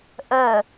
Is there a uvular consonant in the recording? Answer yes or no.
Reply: no